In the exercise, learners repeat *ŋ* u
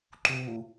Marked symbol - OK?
no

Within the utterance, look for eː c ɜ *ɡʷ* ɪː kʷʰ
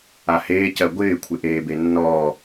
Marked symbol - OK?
yes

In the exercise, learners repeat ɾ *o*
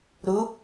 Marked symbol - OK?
no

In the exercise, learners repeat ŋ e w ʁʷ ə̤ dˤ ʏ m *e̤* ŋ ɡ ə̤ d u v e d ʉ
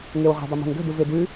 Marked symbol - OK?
yes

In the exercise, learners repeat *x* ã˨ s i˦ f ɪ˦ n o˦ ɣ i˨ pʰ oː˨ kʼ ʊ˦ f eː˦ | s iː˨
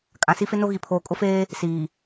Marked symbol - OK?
no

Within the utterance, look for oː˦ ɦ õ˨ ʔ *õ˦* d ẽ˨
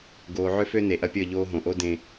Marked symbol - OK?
no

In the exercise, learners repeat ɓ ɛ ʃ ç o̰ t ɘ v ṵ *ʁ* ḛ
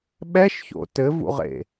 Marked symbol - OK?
yes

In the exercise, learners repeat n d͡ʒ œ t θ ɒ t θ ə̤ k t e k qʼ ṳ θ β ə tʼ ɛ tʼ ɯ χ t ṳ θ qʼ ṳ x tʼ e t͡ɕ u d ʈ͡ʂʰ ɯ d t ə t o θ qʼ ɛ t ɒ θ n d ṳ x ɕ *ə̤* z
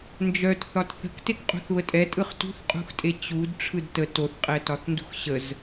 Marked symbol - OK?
no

